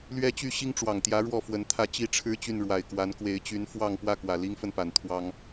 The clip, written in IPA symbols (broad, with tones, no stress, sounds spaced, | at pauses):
l ɥ ɛ˦ t͡ɕ y˥˨ ɕ i˦ ŋ ʈ͡ʂ w ɑ˨˩ ŋ t̪ j ä˨˦ ɻ w ɔ˥˨ f w ə˨˦ n t̪ʰ ä˦ t͡ɕ i˥˨ ʈ͡ʂʰ ɻ̩˦ t͡ɕ y˥˨ n ɻ w a˨˩ ɪ̯ k w a˨˦ n k w e˨˦ ɪ̯ t͡ɕ y˨˦ n f w ɑ˥˨ ŋ p w ä˥˨ k w ä˨˩ l i˦ ŋ f ə˥˨ n p a˨˩ n t̪ʰ w ɑ˦ ŋ